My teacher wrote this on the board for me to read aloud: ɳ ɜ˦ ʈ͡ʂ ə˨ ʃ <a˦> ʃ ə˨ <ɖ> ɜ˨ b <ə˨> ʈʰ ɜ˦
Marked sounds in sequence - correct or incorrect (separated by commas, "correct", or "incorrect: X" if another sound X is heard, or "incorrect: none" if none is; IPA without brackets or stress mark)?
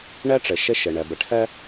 incorrect: ə˦, incorrect: ɳ, correct